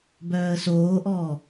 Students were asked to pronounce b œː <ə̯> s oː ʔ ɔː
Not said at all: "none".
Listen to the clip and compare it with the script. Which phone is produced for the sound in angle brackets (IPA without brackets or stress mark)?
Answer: ə̯